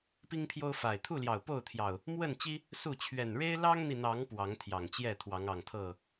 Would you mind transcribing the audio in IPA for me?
p i˦ ŋ pʰ j o˦ ʊ̯ f a˨˩ ɪ̯ t̪ʰ u˥˨ l j ɑ˨˩ ʊ̯ p o˥˨ ʊ̯ t̪ʰ j ɑ˨˩ ʊ̯ | m w ə˥˨ n t͡ɕ i˦ | s u˥˨ t͡ɕʰ ɥ ɛ˨˩ n ɻ e˦ ɪ̯ l ɑ˦ ŋ n̪ i˨ n̪ ɑ˨˦ ŋ p w ɑ˨˦ ŋ t̪ʰ j ɑ˨˩ ŋ t͡ɕ j ɛ˥˨ t̪ʰ w ɑ˨˦ ŋ ɑ˨˩ ŋ t̪ʰ ɤ˥˨

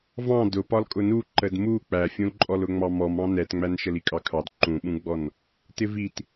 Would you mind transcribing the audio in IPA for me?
v ɑ̃ d ʊ p ɒ l kʼ ʊ n u ǃ ə d m u k͡p æ fʲ ũ l ǃʼ ɔ l ʊ ŋ͡m ɑ m ɔ m ɑ̃ n ɛ t ŋ͡m æ n ʃ ə l i kʼ ɑ kʰ ɑ d ǃ ũ ɓ ũ ɡ͡b ɔ n | t ɪ v i t

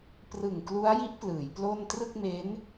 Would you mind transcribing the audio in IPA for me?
p r ɯ˨˩ ŋ k l u˦˥ a̯ j i˦˥ ʔ p l ɯː˩˦ j p l o˥˩ n t r ɯ˥˩ k̚ m e˦˥ n

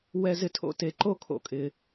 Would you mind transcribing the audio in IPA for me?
w ɛ˨ z ɪ˨ tʰ o̰˦ t e˨ ǃ o˦ kʰ o̰˦ kʼ ɪː˦

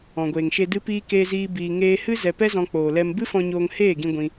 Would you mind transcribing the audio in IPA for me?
ɔ̃˨ ɡʷ eː˨ ŋ ʃ e˧ d ɨ˧ p iː˧ k eː˧ z iː˧ b iː˨ ŋ eː˧ h ɨ˦ z ɛ˧ p ɛ˦ z ɔ̃˧ k͡p oː˨ l ɛ˧ m b ɨ˦ f ɔ̃˧ ɲ oː˧ ŋ h eː˦˨ ɡ ĩ˧ ɡʷ ĩ˧

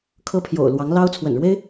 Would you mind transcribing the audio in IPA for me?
kʰ ɤ˥ pʰ j o̰˨˩ ʊ̯ l w ɑ˧˥ ŋ l ɑ˥ ʊ̯ t͡sʰ w ə̰˨˩ n ɻ w e˥ ɪ̯

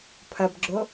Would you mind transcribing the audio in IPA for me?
pʰ ɐ b ɡ͡ǁ o

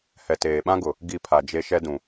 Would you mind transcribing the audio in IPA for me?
h ɛ˨ t eː˨ ɓ ã˦ ɡ ʊ˨ | ɡ i˦˨ pʰ a˨ d͡ʒ e˦ ʃ ɛ˦ d ũ˨

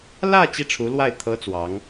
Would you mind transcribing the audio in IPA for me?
l ä˥˧ t͡ɕ i˥˩ ʈ͡ʂʰ u˧˥ l w a˥˩ ɪ̯ t̪ʰ ɤ˥ t͡s w ɑ˧˥ ŋ

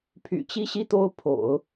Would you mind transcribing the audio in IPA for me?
pʰ y̰˨˩ t͡ɕ i˥˧ ɕ i˥˧ t̪ o˥˩ ʊ̯ pʰ o̰˨˩˦ ʊ̯

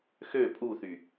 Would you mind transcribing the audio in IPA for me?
x ø pʼ u θ y

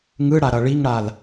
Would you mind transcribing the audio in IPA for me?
ŋ ɯ ɽ a ɾ ʌ ɭ i ŋ ɽ a l

